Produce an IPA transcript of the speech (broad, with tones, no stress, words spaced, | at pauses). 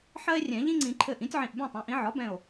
ħɜ˦e̯rʲɛ̃˨˩˦ ʎĩ˦ŋ͡ǀĩ˨˩˦ ǃʰɘ˧˩ʔĩ˩˥tʲʕĩ˧˩ʔ bẽ˥˩tˤẽ˩˥ʔĩ˩˥ ʕɒ˩˥bɛ̃˧˩o̯